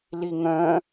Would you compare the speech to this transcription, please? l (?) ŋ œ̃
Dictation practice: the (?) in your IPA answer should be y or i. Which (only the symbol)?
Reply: i